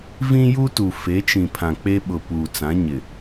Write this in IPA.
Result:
vĩ˦ju˦tu˨ fe˨˦t͡ʃĩ˨ pʰã˨k͡pe˦ɓʊ˨ puː˨t͡sã˨˦ɲɪ˨

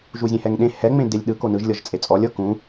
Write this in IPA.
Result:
ʒuzʲẽhɛŋɗẽ hɛ ŋ͡mẽdelʲɗɯ konɯʒ lʲɤʒt͡sʼet͡sʼɔlʲ ɤkũ

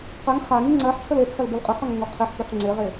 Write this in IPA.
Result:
qɛŋ χaŋi ŋ͡ǀɜħ t͡sʰəlet͡sʰɜl bolqʼiqɛŋ əŋoqʰeħkʉħ ŋ͡ǀeʁe

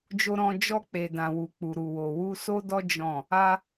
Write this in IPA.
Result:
d͡ʒo˧ɾɔ̃˧ d͡ʒɔ˧k͡pe˨dã˨wu˨ k͡pu˨ɾu˨wo˨ wu˧ so˦dɔ˦ d͡ʒɔ̃˦˨ | a˧

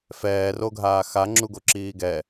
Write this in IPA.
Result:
fɛːroɡʱaː xaŋ͡ǁuɡoǁiː ɡɛ

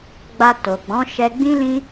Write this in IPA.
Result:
ɡ͡ba˧ to˨ɡ͡bɔ̃˨˦ ʃɛ˧ɡ͡bĩ˦lĩ˦

